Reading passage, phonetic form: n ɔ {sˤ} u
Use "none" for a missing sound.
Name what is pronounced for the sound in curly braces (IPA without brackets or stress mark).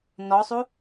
sˤ